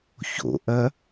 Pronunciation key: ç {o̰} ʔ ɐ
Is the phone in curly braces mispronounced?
no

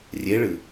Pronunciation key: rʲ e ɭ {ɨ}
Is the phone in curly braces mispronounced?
no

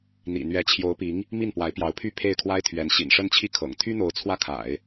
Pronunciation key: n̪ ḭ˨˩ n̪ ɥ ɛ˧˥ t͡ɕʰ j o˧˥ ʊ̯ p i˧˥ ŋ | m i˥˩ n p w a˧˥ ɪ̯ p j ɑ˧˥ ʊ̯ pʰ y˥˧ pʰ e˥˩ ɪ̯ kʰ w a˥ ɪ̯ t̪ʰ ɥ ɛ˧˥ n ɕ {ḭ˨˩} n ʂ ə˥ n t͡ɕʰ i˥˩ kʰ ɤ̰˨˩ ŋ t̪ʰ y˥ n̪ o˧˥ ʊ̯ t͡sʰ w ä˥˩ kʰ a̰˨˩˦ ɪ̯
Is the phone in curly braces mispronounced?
no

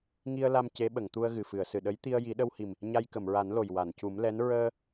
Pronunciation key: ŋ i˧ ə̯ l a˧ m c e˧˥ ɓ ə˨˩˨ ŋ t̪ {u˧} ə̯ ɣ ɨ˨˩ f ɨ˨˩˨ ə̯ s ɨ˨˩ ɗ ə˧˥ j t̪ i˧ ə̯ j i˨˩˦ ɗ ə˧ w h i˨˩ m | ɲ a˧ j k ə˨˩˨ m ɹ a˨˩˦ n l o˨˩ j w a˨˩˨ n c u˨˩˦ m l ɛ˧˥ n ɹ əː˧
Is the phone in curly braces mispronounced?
no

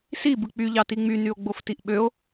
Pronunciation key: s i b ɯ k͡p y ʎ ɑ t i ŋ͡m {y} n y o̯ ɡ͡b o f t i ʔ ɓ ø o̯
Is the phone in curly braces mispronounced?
no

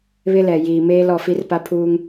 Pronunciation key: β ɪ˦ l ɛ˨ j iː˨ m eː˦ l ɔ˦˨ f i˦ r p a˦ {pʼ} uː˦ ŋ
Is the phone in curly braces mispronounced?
yes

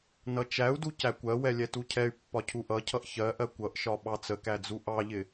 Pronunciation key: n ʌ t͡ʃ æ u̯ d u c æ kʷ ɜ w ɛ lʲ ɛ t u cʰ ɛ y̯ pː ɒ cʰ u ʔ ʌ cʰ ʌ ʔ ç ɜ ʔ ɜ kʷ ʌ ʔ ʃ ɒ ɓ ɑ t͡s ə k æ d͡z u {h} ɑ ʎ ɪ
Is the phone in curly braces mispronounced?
yes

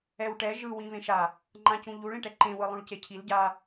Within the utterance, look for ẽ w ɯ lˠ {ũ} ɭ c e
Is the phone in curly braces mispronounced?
no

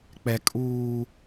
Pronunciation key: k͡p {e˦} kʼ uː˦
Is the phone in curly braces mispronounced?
yes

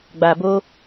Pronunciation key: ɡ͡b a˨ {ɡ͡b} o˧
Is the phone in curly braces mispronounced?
yes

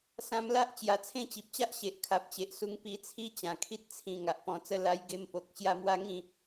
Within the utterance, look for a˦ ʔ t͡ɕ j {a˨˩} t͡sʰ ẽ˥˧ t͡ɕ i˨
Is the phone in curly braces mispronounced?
no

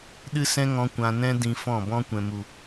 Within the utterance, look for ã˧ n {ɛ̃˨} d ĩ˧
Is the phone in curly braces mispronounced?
yes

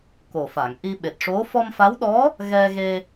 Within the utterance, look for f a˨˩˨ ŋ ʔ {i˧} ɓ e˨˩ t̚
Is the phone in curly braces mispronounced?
no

